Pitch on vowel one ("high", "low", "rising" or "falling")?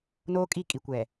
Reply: high